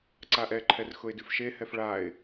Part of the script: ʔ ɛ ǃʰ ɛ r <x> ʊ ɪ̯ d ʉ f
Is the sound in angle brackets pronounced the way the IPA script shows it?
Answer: yes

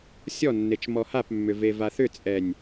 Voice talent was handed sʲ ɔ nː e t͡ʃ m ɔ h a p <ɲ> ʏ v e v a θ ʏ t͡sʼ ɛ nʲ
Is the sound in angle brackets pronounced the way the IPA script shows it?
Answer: no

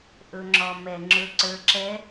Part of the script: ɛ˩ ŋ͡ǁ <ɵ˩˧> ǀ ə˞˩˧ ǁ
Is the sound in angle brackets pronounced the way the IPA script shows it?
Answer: yes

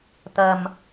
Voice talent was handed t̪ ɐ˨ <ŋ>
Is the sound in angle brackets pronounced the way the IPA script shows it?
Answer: no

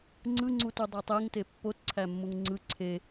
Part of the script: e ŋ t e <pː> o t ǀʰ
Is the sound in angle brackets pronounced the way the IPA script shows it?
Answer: yes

